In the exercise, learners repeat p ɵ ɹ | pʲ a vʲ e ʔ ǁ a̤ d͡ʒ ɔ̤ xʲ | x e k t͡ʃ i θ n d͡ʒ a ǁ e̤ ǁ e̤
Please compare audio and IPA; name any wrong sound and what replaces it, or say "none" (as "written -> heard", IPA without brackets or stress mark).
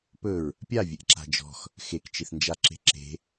xʲ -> x